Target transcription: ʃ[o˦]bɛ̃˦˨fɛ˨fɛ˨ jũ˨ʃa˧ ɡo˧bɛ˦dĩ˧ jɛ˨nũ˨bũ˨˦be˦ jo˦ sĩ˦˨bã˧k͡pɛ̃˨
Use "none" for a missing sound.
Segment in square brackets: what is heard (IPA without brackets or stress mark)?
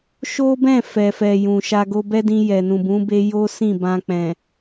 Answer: o˦